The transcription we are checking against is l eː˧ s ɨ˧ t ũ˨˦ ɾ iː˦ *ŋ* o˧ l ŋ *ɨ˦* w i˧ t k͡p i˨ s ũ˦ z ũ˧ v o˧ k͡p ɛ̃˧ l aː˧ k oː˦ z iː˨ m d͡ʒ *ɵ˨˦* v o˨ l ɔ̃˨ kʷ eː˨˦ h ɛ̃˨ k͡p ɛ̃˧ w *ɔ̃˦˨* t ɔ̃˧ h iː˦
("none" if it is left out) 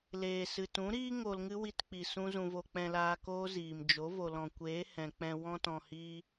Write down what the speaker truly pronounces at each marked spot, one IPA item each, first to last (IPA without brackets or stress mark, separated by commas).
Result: ŋ, ɨ˦, o˨˦, ɔ̃˧